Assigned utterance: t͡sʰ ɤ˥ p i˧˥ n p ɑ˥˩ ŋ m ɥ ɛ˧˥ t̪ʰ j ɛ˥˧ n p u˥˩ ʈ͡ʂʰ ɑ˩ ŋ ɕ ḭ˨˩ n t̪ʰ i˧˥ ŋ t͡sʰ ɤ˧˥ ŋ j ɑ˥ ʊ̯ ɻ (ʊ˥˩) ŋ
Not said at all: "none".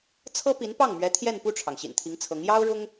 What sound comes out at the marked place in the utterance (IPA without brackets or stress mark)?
ʊ˥